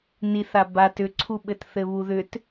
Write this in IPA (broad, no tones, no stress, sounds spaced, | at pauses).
n i θ a b a t ʏ ǀʰ u ɓ ɘ t θ ɘ β u ð ʏ t